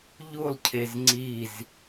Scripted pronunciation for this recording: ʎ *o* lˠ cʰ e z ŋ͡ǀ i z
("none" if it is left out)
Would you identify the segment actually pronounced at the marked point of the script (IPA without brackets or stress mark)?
u